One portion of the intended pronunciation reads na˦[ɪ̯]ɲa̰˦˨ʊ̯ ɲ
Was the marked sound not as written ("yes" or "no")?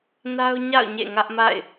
yes